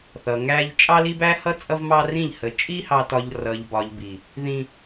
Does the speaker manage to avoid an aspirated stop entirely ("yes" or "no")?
yes